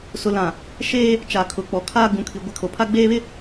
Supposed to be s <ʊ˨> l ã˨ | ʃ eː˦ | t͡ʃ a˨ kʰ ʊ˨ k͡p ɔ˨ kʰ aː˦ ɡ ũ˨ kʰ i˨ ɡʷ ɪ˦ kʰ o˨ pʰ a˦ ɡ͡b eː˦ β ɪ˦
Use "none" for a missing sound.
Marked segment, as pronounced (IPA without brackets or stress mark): ʊ˨